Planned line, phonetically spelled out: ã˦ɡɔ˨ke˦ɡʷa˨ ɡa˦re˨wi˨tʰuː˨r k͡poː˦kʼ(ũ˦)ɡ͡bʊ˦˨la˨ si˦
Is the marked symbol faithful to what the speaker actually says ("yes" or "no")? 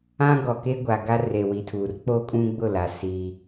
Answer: yes